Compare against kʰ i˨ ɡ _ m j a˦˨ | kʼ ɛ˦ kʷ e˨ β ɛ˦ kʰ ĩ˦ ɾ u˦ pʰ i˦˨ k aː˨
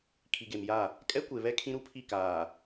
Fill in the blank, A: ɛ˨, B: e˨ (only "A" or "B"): B